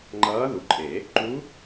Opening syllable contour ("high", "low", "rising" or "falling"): rising